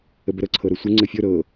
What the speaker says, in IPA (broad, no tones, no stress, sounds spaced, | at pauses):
ə b ə ɾ ɤ ǀʰ ɤ ɾ ɤ sʷ ə ŋ͡ǀ ə fʲ ɤ ɾ ɤ